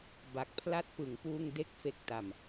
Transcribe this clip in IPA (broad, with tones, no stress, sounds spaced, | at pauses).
b a˨˩ k̚ pʰ l a˦˥ t̚ p ɯ˩˦ ŋ p uː˧ ŋ d e˥˩ k̚ f e˦˥ k̚ t a˨˩ m